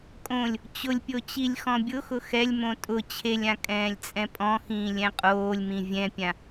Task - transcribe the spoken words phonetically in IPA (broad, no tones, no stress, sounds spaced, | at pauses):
kʼ õ lʲ | t͡ɕ ʊ lʲ pʲ o t͡ɕ i lʲ x ɔ̃ bʲ ʊ x ʊ x ɛ lʲ m õ tʼ ʊ t͡ɕʰ e lʲ ã kʼ ɛ̃ː lʲ t͡sʼ ɛ̃ pʼ ɔ̃ x ĩː lʲ ɛ̃ qʼ oː lʲ m ĩ vʲ ɛ̃ pʲ ã